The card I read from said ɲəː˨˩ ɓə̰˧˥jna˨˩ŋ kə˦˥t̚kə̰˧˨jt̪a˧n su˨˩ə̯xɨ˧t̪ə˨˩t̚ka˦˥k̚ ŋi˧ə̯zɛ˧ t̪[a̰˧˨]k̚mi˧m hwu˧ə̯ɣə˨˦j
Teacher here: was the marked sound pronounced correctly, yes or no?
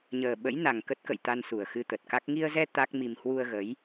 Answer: no